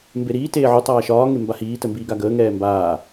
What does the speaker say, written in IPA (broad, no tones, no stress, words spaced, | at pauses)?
mbeɾiː teːʕu tˤaːʃɒː ŋembahiː təmbiːɡaɡəː ŋɛːmbaː